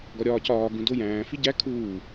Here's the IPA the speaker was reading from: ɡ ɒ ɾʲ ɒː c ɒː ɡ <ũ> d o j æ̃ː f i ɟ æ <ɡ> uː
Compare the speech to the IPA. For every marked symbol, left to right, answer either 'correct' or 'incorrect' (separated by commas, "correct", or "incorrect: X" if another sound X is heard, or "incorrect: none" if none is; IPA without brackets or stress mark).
correct, incorrect: kʰ